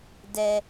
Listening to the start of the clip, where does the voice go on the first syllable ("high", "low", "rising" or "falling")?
low